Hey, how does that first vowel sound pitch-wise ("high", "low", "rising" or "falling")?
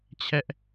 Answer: high